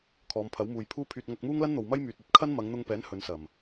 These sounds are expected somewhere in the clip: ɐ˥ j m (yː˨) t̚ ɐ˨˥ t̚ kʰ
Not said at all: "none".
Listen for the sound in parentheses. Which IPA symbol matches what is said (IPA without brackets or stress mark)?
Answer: yː˨